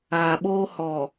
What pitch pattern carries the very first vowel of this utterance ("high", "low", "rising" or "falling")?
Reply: low